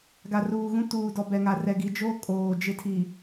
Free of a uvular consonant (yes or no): yes